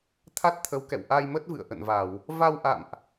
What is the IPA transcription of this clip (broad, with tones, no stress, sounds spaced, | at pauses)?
t̪ʰ a˦˥ t̚ t̪ʰ ə˨˦ w k ɛ̰˧˨ w ʔ a˧ j m ə˦˥ t̚ v ɨ̰˧˨ ə̯ ʔ ə̰˧˨ n v a˧˩˨ w | v a˧ w ʔ a̰˧˨ m ʔ